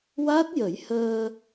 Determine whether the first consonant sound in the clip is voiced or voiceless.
voiced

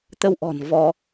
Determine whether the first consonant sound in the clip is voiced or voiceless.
voiceless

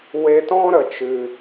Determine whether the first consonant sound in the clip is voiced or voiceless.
voiced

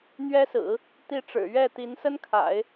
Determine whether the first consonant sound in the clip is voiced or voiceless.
voiced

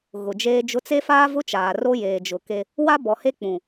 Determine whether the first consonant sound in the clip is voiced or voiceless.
voiced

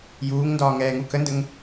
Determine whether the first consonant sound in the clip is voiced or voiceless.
voiced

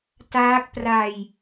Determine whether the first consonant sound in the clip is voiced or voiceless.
voiceless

